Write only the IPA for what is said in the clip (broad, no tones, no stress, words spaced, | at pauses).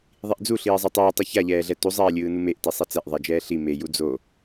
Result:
ðˤiʔd͡zuɬiːzˤɛ tˤɯːtˤɯ çaʎɛːɮɛ tuzˤɛːlʲɯː numeʔti sˤɛt͡sɛʔðˤɛd͡ʒɛː ɬi me jud͡zo